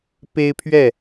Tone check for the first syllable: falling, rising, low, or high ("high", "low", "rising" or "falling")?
high